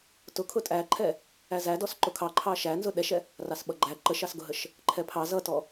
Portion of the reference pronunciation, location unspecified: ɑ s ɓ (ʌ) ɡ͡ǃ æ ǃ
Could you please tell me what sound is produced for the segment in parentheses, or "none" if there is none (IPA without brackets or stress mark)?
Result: ʌ